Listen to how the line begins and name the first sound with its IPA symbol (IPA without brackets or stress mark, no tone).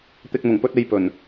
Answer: t̪